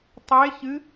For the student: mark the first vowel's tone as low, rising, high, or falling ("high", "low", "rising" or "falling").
rising